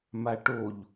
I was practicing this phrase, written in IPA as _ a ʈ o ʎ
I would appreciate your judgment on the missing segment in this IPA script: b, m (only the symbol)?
m